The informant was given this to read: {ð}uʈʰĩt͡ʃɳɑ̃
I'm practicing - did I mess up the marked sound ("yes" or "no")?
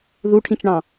no